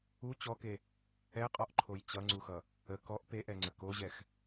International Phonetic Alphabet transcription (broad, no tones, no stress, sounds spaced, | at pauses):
u t͡ɕ ɔ k e | ɛ qʼ ɔ ʔ ǃʰ o j t͡ɕ ʌ ŋ͡ǀ u x ʌ | ə k ɔ ʔ p e ʔ ɛ ŋ͡ǀ ə k o ʑ ɛ x